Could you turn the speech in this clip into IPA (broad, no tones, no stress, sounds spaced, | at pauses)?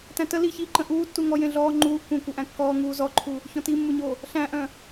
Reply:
t æ̃ t ə l i ç iː ǃ ə̃ ʔ uː tː u ŋ ɔ j ẽ ɮ ɔː ŋ͡ǃ uː ʔ kʷ ə̃ː kʷ œ ʔ æ̃ kː ɔː ŋ uː z ɔ ǃʰ u | ç ɔ̃ t i mː u ɲ o | ɬ æ̃ ʔ œ̃